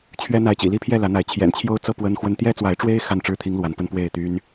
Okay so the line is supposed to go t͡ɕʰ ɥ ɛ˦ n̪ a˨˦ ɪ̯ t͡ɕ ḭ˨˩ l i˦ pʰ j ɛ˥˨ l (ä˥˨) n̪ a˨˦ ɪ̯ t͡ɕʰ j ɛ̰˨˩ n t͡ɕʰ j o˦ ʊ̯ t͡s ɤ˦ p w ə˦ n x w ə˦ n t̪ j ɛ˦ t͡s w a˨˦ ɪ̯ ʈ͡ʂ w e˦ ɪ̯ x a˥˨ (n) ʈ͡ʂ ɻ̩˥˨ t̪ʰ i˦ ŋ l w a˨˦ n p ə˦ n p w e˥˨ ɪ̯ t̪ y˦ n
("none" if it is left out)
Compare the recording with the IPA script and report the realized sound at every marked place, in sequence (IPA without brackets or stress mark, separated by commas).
ä˨˦, n